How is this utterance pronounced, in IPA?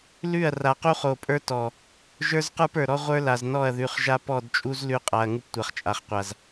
l ʉ˦˨ ɐ̯ r a˨ q u˦ χ o˨ pʼ ə˞˦ t ɔ˨ | ʒ ə˞˦ z q ə˞˦ p ə˞˨ ɾ ɔ˦ ʁʷ ə˞˦ l a˨ z n ɔ˦˨ ɐ̯ ð ʉ˨ χ ʒ a˦ p ɔ˦˨ d t͡ʃʼ u˦ z l ʉ˦ qʼ a˨ ɐ̯ ŋ u˦ p tʷ a˨ χ t͡ʃʼ a˨ χ qʷ a˨ z

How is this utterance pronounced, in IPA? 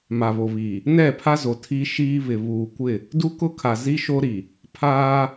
m a˨ β o˨ β iː˨ | n ɛ˦˨ pʰ a˦ z o˨ tʰ i˦ ʃ iː˦ β ɪ˨ β uː˨ kʷ ɪ˦˨ | d u˦ k ʊ˦˨ kʰ a˨ z i˦ ʃ o˦ ɾ i˨ | pʰ aː˦

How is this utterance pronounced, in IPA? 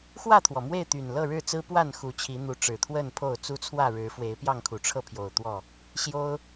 x w ä˥˨ t̪ʰ w ɔ˩ m w e˥˨ ɪ̯ t̪ y˨˩ n l ɤ˥˨ ɻ ɻ̩˥˨ t͡s ɹ̩˦ p w a˥˨ n x u˨˦ t͡ɕʰ i˨˦ n̪ u˨˦ ʈ͡ʂ ɻ̩˨˩ t̪ʰ w ə˥˨ n pʰ o˥˨ ʊ̯ t͡s u˦ t͡sʰ w ä˥˨ ɻ ɻ̩˨˦ f w e˨˦ ɪ̯ p j ɑ˥˨ ŋ kʰ u˨˩ ʈ͡ʂʰ ɤ˥˨ pʰ j o˨˩ ʊ̯ t̪ w ɔ˥˨ | ɕ j o˦ ʊ̯

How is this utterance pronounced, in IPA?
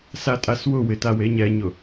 s a tʼ a s w ʊ w ɪ t a w e ɲ ɛ ɲ ʊ

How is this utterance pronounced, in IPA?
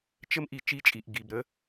t͡ʃ ə˦ m ʔ i˨ t͡ʃ i˦ t͡ʃʼ i˨ ʔ ɡ i˨ b ɾ ə˦

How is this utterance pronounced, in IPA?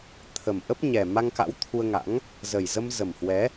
t̪ʰ ə˨˩ m ʔ ə˦˥ p̚ ɲ ɛ˨˩ m a˧ ŋ k a̰˧˥ w t̪ʰ u˧ ə̯ ŋ a̰˧˥ ŋ | z ə˨˩ j z ə˧ m z ə˨˩ m h w ɛ˨˦

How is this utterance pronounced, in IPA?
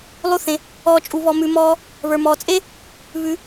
lˠ u˧ θ ẽ˩ | ɔː˧ t͡ʃʼ u˩˧ β ɔ˩˧ m ʉ˩˧ m ɔː˧ | β ə˞˩ m ɔː˩ t͡sʼ e˥ | β ʉ˩˧

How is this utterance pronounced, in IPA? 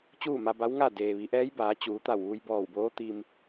t͡ɕ uː˥˨ m a˧ b a˧˥ w ŋ a˥˨ d eː˩ ʋ i˩˧ ʔ ɛː˧˥ j b aː˩˧ t͡ɕ uː˩˧ t̪ a˧˩ w ʋ u˧ j b ɔː˧˩ w b oː˧˥ t̪ i˧ m

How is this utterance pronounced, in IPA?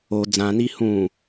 o d͡z ã n i h ũ

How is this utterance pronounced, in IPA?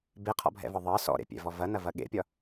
b e qʰ ɔ̰ bʱ ɛ̰ v ɒ ðˤ ʌ s ɔ̰ ɾ ḛ pʲ ɛ̰ v ɔ v ɐ n ɐ v ɐ ɠ ḛ pʲ ɒ

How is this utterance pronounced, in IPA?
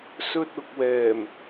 s ɵ˧ t̚ ʊ˨ k̚ w ɛː˨˩ m

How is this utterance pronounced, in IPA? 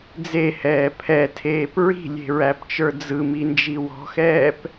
d͡z e h ɛː pʰ ɛ tʰ eː p ɹ i̤ lʲ e̤ ɹ æ p t͡ʃ ə˞ d͡z ɯ m i n d͡ʒ i w ɔ̤ x ɛː p

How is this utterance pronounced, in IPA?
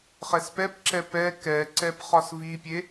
χ ɛ s p ɛ p ǁ ɛ p ɛ k ɛ ǀ ɛ p χ ɒ s v i pʲ e

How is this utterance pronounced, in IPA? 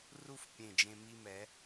r u˥˧ f pʲ ẽ˧˩ d͡ʒ ẽ˧ m i˧ m ɛ˩˧

